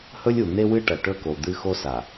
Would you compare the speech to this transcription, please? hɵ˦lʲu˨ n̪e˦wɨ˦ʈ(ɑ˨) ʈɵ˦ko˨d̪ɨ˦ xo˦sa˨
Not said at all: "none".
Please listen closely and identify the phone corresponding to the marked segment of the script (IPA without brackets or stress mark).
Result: ɐ˨